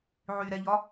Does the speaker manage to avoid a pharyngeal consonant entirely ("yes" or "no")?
no